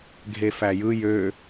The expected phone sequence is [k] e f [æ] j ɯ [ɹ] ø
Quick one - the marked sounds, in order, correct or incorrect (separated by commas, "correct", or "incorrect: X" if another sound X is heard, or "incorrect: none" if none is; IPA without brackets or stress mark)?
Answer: incorrect: ɡʱ, correct, incorrect: j